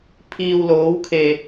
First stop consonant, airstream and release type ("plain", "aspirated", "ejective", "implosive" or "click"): aspirated